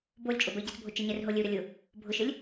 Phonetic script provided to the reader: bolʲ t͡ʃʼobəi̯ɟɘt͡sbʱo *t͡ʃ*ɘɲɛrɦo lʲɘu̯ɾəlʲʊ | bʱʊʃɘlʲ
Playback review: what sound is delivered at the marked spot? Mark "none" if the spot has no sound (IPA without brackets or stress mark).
t͡ʃ